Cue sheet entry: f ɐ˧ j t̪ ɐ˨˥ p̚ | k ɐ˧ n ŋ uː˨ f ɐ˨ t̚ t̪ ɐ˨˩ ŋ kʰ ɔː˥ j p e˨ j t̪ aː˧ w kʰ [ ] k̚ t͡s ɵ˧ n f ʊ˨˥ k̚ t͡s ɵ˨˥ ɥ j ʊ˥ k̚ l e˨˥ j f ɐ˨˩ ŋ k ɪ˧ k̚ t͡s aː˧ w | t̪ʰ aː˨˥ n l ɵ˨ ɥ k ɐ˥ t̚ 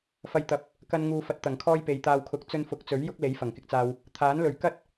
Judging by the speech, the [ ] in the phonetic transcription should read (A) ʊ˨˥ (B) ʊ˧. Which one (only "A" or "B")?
B